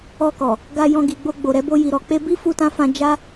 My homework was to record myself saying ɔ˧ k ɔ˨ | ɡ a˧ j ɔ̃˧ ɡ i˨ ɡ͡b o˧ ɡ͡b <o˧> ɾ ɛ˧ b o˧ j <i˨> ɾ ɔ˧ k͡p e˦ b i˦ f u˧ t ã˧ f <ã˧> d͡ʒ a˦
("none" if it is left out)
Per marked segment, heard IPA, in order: o˨, i˨, ã˧

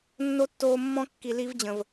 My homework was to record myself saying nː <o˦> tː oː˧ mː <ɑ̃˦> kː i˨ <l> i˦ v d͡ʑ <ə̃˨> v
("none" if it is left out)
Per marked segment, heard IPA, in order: o˦, ɔ̃˦, l, ə̃˨

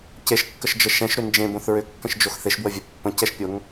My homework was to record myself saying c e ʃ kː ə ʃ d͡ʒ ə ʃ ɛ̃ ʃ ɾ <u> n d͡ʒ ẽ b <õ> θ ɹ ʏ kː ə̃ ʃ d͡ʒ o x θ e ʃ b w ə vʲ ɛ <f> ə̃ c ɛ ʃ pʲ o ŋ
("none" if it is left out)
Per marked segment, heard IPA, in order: ʏ, õ, pː

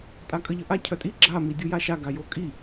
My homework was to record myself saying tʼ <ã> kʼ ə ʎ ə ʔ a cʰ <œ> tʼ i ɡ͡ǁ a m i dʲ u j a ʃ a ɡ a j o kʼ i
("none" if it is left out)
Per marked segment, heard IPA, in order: a, œ

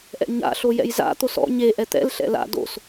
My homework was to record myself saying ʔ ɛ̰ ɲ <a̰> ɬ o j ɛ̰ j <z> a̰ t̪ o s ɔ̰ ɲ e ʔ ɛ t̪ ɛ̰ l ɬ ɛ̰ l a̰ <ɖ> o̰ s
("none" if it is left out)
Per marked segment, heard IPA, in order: a̰, z, d

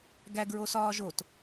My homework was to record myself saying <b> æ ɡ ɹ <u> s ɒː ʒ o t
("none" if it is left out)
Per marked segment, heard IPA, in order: ɡ, o

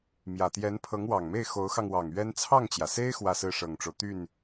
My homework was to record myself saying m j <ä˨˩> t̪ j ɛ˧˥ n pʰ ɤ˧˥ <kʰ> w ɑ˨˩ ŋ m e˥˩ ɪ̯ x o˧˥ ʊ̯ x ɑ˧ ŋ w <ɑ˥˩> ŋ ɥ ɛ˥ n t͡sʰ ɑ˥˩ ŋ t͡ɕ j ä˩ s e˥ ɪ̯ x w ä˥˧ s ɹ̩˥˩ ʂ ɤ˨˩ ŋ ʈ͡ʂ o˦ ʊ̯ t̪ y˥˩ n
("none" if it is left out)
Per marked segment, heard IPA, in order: ä˨˩, ŋ, ɑ˨˩

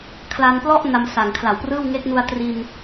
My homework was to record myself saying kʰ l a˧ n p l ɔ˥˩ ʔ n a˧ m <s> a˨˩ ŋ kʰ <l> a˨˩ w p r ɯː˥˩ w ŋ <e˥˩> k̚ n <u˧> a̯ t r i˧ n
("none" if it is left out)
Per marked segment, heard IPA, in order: s, l, e˦˥, u˧

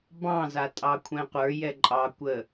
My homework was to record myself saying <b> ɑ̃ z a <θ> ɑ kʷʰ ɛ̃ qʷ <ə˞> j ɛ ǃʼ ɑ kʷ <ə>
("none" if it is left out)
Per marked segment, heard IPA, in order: b, tʼ, ə˞, ə

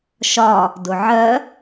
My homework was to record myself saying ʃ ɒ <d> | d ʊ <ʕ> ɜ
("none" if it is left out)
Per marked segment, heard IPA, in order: none, ʕ

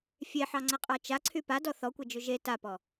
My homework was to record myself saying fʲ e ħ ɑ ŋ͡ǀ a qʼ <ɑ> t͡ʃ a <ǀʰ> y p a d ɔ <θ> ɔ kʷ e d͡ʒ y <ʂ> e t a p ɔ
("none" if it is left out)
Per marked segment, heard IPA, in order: ɑ, ǀʰ, θ, ʒ

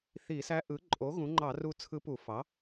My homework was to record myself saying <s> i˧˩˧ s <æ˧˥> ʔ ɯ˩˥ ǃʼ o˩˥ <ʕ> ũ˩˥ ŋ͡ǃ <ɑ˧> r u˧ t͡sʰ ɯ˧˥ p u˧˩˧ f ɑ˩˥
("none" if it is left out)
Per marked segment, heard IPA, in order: θ, æ˧˥, ɣ, ɑ˧˩˧

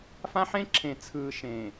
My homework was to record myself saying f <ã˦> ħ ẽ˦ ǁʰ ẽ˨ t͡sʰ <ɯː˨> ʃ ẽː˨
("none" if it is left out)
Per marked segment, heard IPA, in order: ã˦, ɯː˨

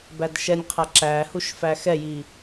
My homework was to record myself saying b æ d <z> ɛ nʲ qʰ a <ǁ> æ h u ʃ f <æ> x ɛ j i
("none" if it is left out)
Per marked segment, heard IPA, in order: ʃ, ǁ, æ

